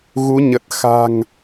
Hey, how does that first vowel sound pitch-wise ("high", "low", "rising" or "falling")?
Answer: rising